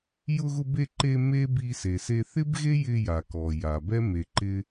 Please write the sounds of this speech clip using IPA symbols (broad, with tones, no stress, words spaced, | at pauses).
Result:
jʊ˧ɣʊ˧be˧ ǃe˧ me˥ bi˧se˩se˧ θɪ˥bɣe˥jɪ˧ja˩ kɔ˩ja˩bɛ˥ me˧ǃɪ˥